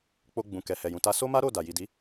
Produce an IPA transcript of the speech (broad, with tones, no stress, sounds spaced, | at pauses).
k͡p o˧ ɡ͡b ũ˨ k ɛ˨ h ɛ˨ j ũ˨ t a˧ s o˦ m a˦ ɾ o˦˨ d a˨ j i˨ d i˨˦